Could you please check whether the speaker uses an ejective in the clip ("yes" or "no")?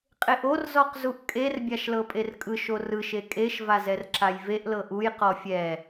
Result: yes